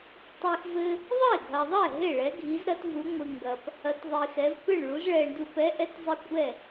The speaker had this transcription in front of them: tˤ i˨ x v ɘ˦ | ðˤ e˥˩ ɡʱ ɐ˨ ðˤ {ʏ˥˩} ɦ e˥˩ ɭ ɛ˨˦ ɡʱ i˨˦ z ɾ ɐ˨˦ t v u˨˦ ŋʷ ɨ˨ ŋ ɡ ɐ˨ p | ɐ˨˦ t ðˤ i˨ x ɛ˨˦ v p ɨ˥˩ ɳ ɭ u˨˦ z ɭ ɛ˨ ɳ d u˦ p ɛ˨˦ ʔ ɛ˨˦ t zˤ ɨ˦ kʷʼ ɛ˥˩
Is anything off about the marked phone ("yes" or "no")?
yes